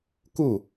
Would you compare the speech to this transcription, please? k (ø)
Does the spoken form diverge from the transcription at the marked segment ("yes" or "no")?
yes